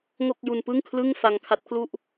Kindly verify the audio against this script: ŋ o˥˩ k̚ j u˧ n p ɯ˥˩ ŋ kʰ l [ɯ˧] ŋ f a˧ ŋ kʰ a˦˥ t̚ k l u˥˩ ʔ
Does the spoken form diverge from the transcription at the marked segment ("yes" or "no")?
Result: yes